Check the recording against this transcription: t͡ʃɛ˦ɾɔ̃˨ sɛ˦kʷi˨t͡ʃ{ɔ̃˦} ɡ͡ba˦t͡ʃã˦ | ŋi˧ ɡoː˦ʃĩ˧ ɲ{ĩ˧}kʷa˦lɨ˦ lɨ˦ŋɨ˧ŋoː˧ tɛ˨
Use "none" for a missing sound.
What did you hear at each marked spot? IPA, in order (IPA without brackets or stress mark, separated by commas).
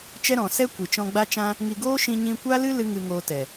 ɔ̃˧, ĩ˧